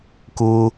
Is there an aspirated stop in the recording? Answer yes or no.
no